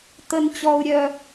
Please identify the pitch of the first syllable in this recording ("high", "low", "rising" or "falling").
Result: low